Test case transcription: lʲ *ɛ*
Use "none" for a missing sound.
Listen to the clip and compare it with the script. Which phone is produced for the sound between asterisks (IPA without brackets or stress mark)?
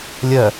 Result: ɜ